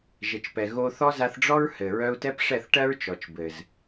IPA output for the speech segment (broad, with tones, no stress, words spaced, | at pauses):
ʒɘ˨t͡ʃpɛ˨ ɣo˧ θɔ˦za˧θɖ͡ʐɔ˦ɹ hɘ˨ ɹœ˧u̯tɛ˦pʂɛ˦˨θʈɜ˦ɹ t͡ʃɔ˨t͡ʃbɘ˨z